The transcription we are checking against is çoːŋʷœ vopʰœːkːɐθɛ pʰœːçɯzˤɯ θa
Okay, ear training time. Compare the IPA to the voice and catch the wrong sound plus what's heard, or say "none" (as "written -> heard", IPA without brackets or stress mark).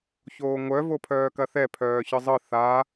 kː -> k